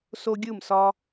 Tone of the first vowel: high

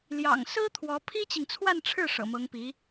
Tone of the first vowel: low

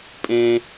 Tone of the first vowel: high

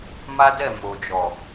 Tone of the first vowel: high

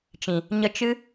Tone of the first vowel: low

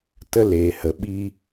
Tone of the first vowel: high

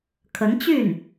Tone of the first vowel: rising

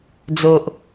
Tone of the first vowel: low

